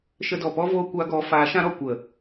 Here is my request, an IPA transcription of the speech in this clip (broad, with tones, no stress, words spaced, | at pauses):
ʃə˧dɔ˨pɔ˦voː˧ kʷa˧ɡɔ˨˦ faː˨˦ʃã˦ɾɔ˨kʷə˨